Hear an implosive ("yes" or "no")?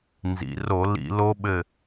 yes